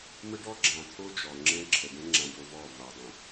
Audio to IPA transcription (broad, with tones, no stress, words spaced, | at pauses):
mə˦ɖɔ˦ɡ͡ǁã˨t̪ʰo˦ d͡ʒɔ˨ŋ͡ǁɛ̃˦ǁʰə˨ ɖɛ̃˦ŋ͡ǁã˨ɖo˨ vɔ˦˨va˨dˤə̃˨